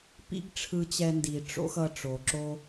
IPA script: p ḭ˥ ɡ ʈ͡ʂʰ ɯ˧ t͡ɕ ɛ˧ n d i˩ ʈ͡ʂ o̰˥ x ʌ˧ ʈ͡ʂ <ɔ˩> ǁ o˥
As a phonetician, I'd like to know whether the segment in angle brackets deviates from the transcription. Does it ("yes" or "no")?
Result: yes